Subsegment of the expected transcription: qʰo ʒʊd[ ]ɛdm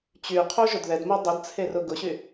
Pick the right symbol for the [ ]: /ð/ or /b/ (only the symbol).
ð